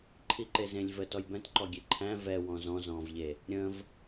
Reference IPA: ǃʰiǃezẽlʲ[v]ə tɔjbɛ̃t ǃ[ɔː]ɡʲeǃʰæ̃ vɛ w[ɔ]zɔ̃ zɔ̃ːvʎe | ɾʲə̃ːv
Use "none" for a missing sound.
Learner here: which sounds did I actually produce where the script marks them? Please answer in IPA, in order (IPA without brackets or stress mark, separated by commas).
v, ɔ, ɔ̃